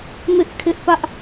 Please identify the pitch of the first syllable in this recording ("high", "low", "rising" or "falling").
high